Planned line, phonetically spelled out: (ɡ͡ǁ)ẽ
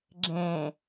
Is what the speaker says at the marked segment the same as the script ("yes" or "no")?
yes